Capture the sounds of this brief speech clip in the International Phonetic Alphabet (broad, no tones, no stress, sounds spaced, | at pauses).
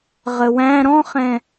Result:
ʁ ə w æ̃ ɾ ɔ̃ χ ɛ̃